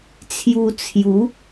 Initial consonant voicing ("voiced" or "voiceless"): voiceless